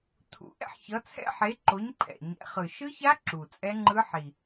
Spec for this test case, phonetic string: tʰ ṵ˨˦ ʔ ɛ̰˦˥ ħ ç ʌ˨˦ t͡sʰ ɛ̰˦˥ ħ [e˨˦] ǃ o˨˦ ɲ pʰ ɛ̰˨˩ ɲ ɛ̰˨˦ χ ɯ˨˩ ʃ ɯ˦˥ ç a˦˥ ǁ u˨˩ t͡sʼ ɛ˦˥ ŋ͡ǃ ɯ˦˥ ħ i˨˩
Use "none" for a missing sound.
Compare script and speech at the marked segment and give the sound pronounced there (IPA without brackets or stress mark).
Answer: e˨˦